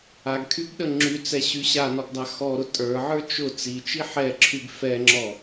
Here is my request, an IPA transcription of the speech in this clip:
a ɡ kʰ y ɡ ɗ ə ŋ͡ǁ y t͡s ɛ ɕ y ɕ a n ɔ ɡ dˤ a x ɔ ɾ ʊ tʼ ə˞ ʕ ə˞ t͡ʃ ʊ t͡s i t͡ʃ i ħ ɛ ǁʰ y ɡ f ɛ ŋ͡ǁ ɔ

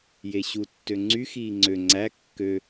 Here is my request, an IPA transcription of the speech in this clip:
j e ɕ u tː ø ŋ͡ǀ y x iː ŋ͡ǀ ø ŋ͡ǀ æ kː ø

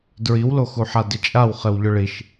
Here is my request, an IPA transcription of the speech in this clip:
d ɹ i w l o x u ħ a d ɪ t͡ʃʼ a w χ ɪ w ʎ ʊ ɭ i ʃ

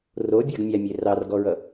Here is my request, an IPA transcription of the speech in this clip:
r o bʲ a ɡ mʲ a mʲ e r ɑ r ɡ ɔ ɹ ʌ

